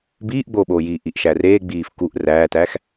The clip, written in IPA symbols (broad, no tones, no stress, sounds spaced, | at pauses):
b iː ʔ ɡ͡b oː ɓ oː j iː ʔ i ʔ ʃ æ r eː ɡ͡b iː f k u ʔ r æː t æː x